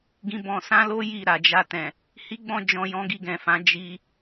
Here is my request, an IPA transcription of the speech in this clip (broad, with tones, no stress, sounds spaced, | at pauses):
ɡ ĩ˧ b ɔ̃˧ s ã˦ l o˦ j i˦˨ ɾ a˨ d͡ʒ a˧ t ɛ̃˨ | h i˦ ɡ͡b ɔ̃˧ d͡ʒ ɔ̃˧ j ɔ̃˦ ɡ i˧ ɡ ɛ̃˨ f ã˨˦ d͡ʒ i˧